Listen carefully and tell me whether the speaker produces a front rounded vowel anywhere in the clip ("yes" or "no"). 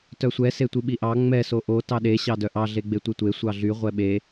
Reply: yes